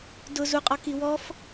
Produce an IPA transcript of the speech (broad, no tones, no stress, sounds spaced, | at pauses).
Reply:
d ʊ z u qʼ ɔ k i w ɔ f